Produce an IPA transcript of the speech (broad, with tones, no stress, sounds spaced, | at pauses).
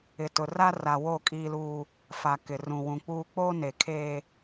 ɪ˨ t ʊ˨ r a˦ r a˨ w o˦˨ kʼ iː˦ l uː˦ | f a˨ k ɪ˨ r ũ˨ w ũ˨ k͡p uː˦ k͡p o˦ n e˨ kʰ eː˦